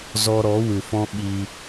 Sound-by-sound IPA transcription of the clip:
zɔ˧ɾɔ˨˦ wɨ˨fɔ̃˦ɓi˧

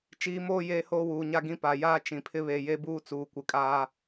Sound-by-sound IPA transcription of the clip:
t͡ʃiː˨moː˦˨ jeː˦hoː˦wuː˨ɲa˦ ɡĩ˦pa˨ jaː˦ t͡ʃĩ˨pʰɪ˦βe˨je˦ buː˦t͡suː˨kʷɪ˨kʼaː˦

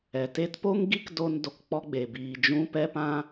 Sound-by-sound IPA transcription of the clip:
ɛ˨te˦t po˦ŋɡi˦kdo˧n do˨kk͡pɔ˦ɡ͡be˨ biː˨d͡ʒũ˦ pɛ˧pã˧

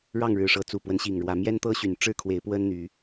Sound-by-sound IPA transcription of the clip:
ɻɑ˥˨ŋɻɻ̩˨˩ʂɤ˨˦ t͡su˨˩pwə˦nɕi˨˩ŋɻwä˨˦ mjɛ˦nt̪ɤ˦ɕy˨˩n ʈ͡ʂɻ̩˥˨kʰwe˨˦ɪ̯pwə˦n n̪y˨˦

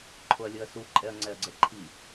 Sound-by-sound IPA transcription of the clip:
ǃʰoɐ̯lʲɤɐ̯su ǃʼɛɐ̯ŋ͡ǀɛɐ̯ɡ͡ǀɛǃʰi

